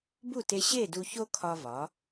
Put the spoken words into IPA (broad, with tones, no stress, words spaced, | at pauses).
bu˥˩te˧ ɕe˥˩ du˧ço˥kʰɒ˧ vɒ˩˥